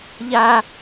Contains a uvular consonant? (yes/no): no